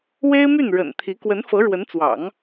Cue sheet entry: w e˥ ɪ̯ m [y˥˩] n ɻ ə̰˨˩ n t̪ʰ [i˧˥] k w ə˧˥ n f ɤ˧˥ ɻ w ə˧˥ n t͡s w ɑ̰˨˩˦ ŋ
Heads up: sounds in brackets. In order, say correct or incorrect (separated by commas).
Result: correct, correct